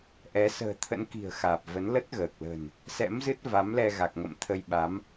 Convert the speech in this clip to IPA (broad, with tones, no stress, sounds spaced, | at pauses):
ʔ ɛ˨˦ s ə̤ː˨˩ t̪ʰ ə̰˧˥ n k i̤˨˩ ə̯ x aː˨˩ p̚ v ə˨˦ n l ə˦˥ t̚ ɣ əː˨˩ k̚ l ə̤˨˩ n | s ɛ̰˧˥ m z ɨ˦˥ t̚ v a˨˦ m l ɛ˧ ɣ a˨˩ k̚ ŋ ə̰˧˨ m t̪ʰ ə˧ j ɓ a˨˦ m